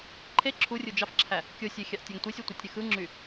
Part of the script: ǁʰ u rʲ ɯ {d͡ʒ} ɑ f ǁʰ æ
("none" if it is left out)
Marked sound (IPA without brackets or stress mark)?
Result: d͡ʒ